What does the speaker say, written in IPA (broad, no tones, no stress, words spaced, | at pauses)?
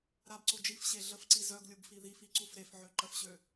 ɾabǀo d͡ʒifɕe ɮəfǀi zœɡlʲub fiðifi ǀufɾefʕø ǃəfɕø